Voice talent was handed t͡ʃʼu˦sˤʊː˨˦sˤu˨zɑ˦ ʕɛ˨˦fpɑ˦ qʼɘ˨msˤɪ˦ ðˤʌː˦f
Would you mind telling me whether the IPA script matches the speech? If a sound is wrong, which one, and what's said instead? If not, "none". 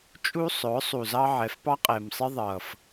ɘ˨ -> ɛ˨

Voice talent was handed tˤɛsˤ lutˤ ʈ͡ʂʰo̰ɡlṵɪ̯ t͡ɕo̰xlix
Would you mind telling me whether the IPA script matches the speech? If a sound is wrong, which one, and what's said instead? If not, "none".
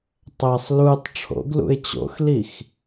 none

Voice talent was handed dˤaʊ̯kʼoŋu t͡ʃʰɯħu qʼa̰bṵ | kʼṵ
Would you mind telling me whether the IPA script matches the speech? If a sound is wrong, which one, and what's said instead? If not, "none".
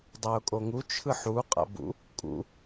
none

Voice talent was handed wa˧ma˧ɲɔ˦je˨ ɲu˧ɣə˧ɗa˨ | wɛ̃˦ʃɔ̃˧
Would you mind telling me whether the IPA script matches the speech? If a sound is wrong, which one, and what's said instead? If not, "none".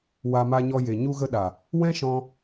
ɔ˦ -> ɔ˧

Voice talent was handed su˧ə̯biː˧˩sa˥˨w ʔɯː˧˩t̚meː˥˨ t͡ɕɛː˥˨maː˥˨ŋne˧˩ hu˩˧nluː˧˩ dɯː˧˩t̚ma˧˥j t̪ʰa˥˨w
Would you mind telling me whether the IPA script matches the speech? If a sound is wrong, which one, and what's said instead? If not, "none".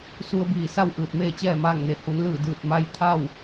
uː˧˩ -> ɯː˧˩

